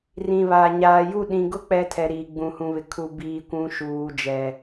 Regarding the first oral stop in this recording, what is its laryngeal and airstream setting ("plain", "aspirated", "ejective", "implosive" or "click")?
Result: implosive